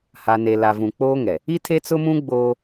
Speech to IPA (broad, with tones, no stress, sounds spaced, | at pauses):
h a˨ n e˨ l a˨ v ũ˨ k͡p oː˦ ŋ ɛ˨ | i˦ tʰ e˦ t͡s ʊ˦ m ũ˦ ɡ͡b oː˦